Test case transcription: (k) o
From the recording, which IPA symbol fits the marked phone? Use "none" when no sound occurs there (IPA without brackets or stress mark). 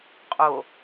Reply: qʼ